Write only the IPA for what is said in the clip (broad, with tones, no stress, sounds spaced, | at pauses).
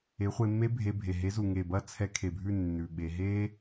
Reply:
e˨˦ χʷ e˧ mː e˦ bʱ e˧ bʱ e˨ ɦ e˨˦ z u˨ ŋ e˨ b ɐ˦˨ t͡sʰ ɛ˧ kʰ e˨ bʱ ʉ˦˨ nː ʉ˨ ɓ e˧ ɦ e˦